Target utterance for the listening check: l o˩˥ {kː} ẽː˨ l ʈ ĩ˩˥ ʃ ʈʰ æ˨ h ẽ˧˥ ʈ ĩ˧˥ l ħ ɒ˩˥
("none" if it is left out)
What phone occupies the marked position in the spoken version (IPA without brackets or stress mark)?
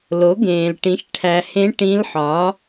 ɡ